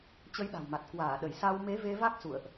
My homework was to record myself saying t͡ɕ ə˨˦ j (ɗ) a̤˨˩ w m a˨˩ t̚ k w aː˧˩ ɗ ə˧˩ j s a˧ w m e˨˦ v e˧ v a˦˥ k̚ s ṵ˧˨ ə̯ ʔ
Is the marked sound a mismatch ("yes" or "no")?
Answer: no